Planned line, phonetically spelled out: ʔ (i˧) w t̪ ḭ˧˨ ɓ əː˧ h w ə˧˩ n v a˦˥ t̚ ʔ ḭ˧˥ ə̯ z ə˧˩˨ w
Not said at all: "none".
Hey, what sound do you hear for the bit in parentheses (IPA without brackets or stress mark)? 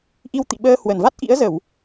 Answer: i˧